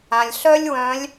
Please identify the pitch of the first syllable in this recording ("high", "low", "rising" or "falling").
low